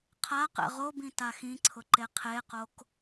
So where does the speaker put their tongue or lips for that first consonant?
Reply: uvula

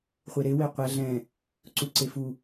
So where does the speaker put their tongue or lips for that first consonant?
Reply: uvula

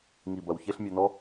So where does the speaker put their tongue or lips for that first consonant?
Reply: velum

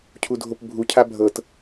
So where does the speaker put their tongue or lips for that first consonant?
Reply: palate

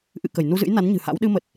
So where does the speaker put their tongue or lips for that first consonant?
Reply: throat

